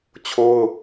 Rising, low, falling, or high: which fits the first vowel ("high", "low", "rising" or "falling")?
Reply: high